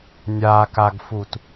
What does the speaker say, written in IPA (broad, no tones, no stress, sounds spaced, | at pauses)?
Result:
nʲ a k a ɡ f u t